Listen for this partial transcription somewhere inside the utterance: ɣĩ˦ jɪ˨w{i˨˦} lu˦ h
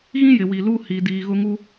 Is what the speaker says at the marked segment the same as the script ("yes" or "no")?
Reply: no